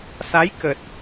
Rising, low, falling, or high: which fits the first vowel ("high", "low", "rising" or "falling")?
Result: rising